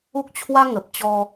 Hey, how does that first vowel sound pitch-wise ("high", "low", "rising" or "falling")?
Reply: high